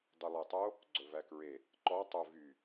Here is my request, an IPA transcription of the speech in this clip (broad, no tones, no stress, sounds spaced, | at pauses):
dˤ y lˠ e tˤ o | ɡ͡ǀ ɵ v æ k ɹ e | ǃ ɔ tˤ ɵ v y